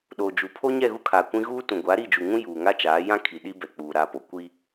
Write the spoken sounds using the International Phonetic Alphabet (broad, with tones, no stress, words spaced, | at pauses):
ɗoː˨ d͡ʒu˨pʰo˦ ɲɛ˦˨ɣu˦kʰaː˨ kʷĩ˦ ɣuː˦tũ˨ ɡʷa˨˦ɾi˦˨d͡ʒu˨ŋũ˦ juː˨ŋa˦t͡ʃaː˨˦ jã˦ kʰi˨ɗi˦bɛ˨ k͡puː˨ɾa˦˨po˨ kʷi˦